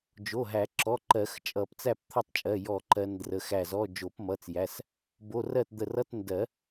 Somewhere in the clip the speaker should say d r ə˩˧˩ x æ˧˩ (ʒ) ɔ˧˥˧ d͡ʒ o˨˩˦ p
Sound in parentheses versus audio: incorrect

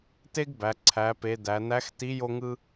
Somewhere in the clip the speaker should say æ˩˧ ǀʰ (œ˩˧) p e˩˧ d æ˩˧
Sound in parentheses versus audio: incorrect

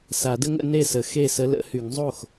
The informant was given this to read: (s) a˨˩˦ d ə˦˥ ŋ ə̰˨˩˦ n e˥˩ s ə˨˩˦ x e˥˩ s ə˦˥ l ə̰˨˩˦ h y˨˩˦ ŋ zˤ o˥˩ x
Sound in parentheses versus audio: correct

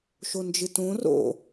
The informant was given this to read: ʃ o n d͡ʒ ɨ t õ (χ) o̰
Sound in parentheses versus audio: incorrect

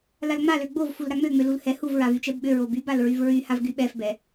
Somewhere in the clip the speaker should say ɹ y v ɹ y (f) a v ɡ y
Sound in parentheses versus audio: incorrect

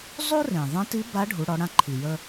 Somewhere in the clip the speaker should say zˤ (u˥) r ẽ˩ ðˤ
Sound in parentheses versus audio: correct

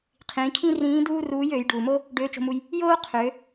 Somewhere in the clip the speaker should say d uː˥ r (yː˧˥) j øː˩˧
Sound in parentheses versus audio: incorrect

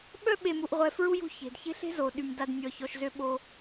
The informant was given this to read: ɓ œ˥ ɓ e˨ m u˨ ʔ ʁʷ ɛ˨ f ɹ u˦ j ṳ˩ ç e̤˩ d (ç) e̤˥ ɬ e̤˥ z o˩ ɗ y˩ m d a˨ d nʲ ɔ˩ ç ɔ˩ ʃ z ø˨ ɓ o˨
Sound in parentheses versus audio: correct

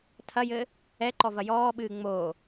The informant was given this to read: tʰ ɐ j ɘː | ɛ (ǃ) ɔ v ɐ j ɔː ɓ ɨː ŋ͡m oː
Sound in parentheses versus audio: correct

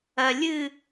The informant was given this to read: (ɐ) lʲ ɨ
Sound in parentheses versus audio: correct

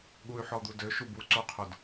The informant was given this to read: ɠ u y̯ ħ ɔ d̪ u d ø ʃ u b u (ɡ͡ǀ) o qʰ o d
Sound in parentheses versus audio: incorrect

